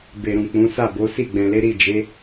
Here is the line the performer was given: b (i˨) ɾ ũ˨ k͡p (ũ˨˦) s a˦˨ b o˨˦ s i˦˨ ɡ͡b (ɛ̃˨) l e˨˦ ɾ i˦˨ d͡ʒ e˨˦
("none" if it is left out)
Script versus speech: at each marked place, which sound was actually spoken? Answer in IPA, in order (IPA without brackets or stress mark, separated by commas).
e˨, ũ˨˦, ɛ̃˨